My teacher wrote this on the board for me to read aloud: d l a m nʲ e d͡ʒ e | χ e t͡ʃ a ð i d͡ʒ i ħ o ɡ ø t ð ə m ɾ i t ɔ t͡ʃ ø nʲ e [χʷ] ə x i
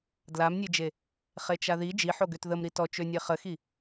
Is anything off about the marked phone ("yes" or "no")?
yes